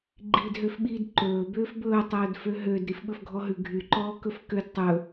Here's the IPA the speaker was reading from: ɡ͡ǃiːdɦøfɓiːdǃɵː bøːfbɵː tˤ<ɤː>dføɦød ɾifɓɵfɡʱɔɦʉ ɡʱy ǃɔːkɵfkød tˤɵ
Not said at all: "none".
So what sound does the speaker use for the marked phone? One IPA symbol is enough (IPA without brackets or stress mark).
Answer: ɵː